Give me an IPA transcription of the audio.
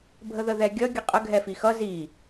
bʱ ə ð ə ð ɛ ɡʲ ʌ ɡʲ ə qʼ ə ɡʱ ɛ f i x ʌ z i

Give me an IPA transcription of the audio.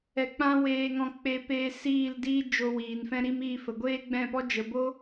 ɛ˧ k͡p ã˦ w eː˧ ŋ ɔ̃˧ k͡p e˧ p eː˧ s iː˦˨ l d iː˦ d͡ʒ o˧ w iː˨ n f ɛ̃˧ ɾ i˦ m iː˦˨ f ə˨ ɡʷ eː˦ ɡ͡b ɛ̃˦˨ p ɔ˦ d͡ʒ ə˨ b o˦

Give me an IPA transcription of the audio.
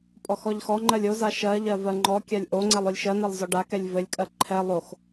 pʼ ɔ x ɔ ʎ x ɔ ŋ͡ǃ ɜ lʲ o z a ʃ ɜ ʎ ɜ v ɜ ŋ͡ǃ ɔ kʲ a lʲ ʔ o ŋ͡ǀ ɛ lˠ o lʲ ʃ ɜ n ɜ lˠ z ɔ ɖ a k ɛ lʲ v ɘ lʲ kʼ ɜ ǃʰ ɛ lˠ o x

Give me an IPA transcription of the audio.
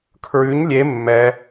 kʰ ɹ ʉ ɲ lʲ e mː ɛ

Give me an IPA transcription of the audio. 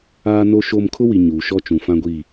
aː˦ n o˦ ʃ o˦ m kʰ ʊ˦ w i˨ ɲ uː˨ ʃ ɔ˦ t͡ʃ ũ˨ f ã˦ ɡʷ i˦˨

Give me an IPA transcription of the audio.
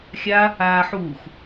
xʲ a | aː ħ uː x

